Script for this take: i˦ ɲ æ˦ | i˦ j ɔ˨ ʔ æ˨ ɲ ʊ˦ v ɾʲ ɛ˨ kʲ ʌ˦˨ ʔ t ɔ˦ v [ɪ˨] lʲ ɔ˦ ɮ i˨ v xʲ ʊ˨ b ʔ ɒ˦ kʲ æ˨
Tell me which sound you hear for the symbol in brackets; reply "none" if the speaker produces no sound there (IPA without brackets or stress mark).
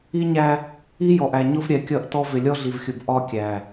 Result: ɪ˨